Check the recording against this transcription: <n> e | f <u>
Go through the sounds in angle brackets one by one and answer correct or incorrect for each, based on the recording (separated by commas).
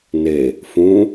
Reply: correct, incorrect